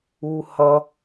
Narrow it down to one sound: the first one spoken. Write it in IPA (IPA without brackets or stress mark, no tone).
u